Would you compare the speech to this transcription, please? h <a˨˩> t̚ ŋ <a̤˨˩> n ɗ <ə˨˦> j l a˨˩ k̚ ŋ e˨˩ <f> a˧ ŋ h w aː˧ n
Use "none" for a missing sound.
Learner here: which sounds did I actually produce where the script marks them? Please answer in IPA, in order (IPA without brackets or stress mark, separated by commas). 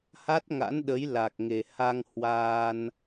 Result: a˦˥, a̰˧˥, ə˨˦, h